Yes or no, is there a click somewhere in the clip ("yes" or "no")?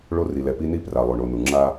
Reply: yes